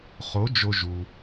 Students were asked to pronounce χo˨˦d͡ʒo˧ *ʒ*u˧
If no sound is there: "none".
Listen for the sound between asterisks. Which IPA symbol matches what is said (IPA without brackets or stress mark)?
ʒ